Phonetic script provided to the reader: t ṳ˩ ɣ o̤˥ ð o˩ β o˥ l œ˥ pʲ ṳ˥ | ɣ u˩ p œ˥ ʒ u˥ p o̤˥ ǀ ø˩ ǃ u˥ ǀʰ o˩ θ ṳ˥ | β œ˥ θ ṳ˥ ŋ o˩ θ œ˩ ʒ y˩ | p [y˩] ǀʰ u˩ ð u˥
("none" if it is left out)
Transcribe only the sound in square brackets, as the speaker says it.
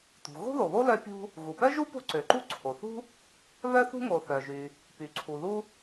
y˩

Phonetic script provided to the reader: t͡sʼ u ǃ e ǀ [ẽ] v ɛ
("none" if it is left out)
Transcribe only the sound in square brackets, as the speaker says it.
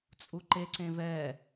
ẽ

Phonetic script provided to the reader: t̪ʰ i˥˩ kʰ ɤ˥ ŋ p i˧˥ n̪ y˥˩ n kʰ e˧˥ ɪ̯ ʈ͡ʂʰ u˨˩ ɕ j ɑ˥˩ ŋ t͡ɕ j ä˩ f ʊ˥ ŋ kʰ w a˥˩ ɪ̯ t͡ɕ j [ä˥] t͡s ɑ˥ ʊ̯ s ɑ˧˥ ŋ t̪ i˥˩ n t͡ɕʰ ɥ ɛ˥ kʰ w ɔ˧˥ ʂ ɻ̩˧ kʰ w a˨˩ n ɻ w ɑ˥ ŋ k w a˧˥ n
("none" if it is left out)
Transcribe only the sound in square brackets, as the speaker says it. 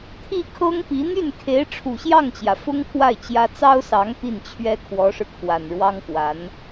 ä˥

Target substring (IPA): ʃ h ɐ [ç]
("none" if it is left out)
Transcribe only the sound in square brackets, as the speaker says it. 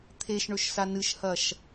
ʃ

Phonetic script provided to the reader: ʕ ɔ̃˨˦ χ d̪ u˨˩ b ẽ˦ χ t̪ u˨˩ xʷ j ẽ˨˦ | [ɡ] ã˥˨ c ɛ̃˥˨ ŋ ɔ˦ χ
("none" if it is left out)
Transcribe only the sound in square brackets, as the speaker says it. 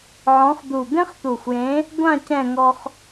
ɡʷ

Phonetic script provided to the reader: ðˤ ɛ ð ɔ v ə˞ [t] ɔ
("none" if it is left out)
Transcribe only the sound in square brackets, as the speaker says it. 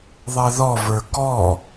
k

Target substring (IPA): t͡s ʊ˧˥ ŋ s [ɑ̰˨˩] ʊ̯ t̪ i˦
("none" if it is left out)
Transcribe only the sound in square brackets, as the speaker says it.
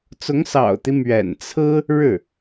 ɑ̰˨˩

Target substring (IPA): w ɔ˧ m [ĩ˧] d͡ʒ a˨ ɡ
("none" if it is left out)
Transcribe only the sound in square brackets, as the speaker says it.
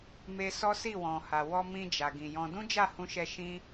ĩ˧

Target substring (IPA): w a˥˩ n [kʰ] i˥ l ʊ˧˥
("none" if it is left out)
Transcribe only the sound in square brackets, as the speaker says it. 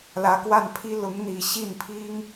pʰ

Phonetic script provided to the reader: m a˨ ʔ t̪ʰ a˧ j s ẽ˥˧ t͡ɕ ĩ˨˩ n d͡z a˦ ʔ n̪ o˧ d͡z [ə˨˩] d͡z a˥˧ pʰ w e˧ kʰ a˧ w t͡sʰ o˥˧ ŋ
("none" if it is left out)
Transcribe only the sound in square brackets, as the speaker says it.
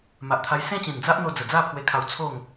ə˨˩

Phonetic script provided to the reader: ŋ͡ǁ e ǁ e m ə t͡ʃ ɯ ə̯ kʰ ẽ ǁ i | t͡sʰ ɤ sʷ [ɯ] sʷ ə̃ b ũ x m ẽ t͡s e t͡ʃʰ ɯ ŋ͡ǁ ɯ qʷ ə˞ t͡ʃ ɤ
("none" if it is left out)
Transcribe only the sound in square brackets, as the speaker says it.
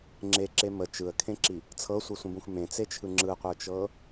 ɯ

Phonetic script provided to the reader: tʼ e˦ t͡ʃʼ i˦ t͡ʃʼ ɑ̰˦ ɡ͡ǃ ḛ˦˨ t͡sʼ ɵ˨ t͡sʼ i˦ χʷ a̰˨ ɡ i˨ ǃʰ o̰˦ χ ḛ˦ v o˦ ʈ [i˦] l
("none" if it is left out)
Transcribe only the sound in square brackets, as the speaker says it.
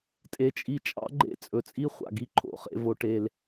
e˦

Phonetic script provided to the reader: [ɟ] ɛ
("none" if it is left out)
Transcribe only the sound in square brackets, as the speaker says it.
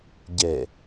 ɟ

